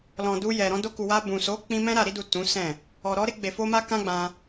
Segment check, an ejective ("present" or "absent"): absent